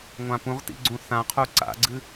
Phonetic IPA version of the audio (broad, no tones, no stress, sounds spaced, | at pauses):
ŋʷ ã p ũ ʁ t ḭ ɡ͡ǀ ũ θ ã qʰ u ǀ a̰ ɡ͡ǀ ɨ